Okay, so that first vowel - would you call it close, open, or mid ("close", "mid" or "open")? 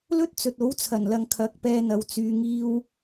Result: mid